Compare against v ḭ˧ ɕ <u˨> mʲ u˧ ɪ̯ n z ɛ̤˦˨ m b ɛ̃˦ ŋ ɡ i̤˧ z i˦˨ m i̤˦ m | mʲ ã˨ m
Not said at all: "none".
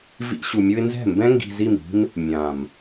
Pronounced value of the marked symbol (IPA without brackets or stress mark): u˨